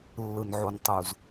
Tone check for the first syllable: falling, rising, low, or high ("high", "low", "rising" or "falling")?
low